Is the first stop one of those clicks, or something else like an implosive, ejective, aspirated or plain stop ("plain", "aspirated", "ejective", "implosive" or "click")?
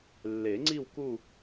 click